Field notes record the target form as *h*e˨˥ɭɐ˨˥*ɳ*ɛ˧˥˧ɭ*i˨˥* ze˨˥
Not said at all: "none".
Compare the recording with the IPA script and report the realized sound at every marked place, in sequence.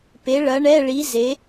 p, ɳ, i˨˥

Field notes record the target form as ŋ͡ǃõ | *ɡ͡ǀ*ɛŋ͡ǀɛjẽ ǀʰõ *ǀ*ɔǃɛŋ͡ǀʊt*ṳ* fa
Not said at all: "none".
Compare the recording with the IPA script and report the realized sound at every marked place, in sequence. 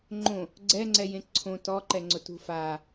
ɡ͡ǀ, t, ṳ

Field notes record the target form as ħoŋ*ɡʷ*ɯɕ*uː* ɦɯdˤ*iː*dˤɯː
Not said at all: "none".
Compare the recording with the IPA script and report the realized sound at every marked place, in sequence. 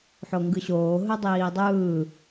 ɡ, oː, iː

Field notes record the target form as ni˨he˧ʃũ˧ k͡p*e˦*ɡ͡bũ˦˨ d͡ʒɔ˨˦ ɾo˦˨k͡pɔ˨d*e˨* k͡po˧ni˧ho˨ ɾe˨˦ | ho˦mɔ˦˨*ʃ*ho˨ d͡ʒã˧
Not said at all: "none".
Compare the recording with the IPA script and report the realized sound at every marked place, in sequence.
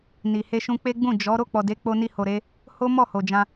e˦, e˨˦, none

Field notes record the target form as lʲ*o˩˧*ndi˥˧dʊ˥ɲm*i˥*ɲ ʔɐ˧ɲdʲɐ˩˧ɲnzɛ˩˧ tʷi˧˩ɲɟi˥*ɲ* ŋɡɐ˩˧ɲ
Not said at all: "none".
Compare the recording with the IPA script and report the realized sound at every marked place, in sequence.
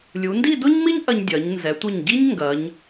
u˩˧, i˥, ɲ

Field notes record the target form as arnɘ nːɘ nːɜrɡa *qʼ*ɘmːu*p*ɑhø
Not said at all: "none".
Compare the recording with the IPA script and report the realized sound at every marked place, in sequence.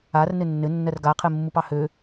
qʰ, p

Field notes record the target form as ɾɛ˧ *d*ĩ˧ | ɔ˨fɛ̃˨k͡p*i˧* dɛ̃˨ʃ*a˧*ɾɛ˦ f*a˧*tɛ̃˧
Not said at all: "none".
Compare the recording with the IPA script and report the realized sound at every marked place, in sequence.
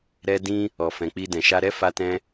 d, i˧, a˧, a˧

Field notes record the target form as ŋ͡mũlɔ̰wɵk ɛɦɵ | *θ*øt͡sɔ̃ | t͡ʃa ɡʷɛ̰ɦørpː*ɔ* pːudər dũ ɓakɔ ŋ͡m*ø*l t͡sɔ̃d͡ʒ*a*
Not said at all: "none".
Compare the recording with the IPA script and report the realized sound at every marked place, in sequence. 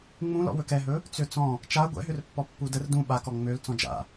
t͡s, ɔ, ø, a̰

